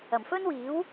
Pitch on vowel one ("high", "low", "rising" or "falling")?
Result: low